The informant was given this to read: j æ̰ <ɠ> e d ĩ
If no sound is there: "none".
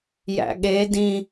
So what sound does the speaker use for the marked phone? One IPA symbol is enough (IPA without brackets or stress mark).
ɠ